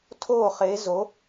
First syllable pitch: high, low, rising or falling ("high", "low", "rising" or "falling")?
falling